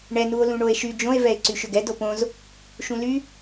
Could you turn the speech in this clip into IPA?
ɳɛ nuo̯lũɳoe̯ʃy d͡ʒõe̯ vɛe̯ǀyʃʏɡɛ dopõz | ʃũly

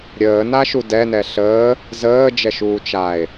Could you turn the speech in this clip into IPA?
ɾʲəːnaʃu dɛnɛ ɬəː | zəːd͡ʒɛʃuː t͡ʃae̯

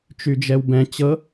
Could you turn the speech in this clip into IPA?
t͡ʃyd͡ʒɛwbɛ̃ t͡ɕɤ

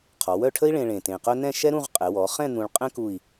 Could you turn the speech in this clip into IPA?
qʰɔ˩˧wœ˥˧ʈʰə˥i̯ɭẽ˧ ɭẽ˧˩tẽ˧˩qœ˥ nɛ̃˥˧ʃɛ˥ɾũ˥˧ʁ qʼɛ˩˧wɔ˩˧χɛ̃˥˧ n̪ũ˧ɭqʼɛ̃˥ ku˥˧i̯

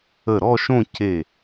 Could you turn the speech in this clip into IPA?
ə˧˩ɾɔ˥˧ʃõ˥˧ ce˧˩

